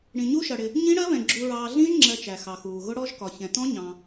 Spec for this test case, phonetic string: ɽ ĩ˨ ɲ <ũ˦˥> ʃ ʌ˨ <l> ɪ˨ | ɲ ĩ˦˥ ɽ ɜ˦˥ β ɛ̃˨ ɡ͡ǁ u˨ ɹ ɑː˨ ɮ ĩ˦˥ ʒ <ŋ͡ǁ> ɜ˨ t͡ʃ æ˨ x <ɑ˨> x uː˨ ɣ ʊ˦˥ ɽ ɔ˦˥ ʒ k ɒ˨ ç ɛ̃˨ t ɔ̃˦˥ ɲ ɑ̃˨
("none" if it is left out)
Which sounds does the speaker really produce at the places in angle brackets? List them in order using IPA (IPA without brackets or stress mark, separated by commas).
u˦˥, ɽ, ŋ͡ǁ, ɑ˨